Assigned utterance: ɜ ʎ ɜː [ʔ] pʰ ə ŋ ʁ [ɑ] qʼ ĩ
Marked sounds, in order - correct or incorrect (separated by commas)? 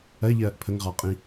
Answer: correct, correct